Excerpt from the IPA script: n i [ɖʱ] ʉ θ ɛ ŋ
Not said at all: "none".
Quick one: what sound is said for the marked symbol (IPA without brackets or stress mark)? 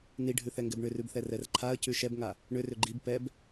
ɖʱ